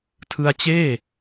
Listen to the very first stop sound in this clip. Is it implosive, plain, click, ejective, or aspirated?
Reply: aspirated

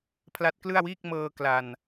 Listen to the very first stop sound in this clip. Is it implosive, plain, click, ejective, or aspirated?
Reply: aspirated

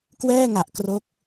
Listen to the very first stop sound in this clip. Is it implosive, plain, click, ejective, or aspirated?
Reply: plain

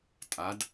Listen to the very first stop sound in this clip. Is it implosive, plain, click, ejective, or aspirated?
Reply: ejective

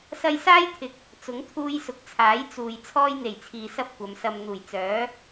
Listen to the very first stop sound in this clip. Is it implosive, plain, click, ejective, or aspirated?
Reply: aspirated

